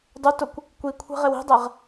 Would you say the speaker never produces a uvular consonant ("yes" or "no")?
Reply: no